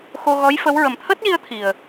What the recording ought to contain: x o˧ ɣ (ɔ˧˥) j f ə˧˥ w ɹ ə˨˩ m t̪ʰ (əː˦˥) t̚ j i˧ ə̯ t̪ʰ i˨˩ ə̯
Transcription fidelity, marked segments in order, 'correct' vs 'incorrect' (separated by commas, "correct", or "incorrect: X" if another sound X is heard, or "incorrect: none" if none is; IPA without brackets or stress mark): correct, correct